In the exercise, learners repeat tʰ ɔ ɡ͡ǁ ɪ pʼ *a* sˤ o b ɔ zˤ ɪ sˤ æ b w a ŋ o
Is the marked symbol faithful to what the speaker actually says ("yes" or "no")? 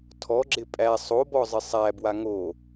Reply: no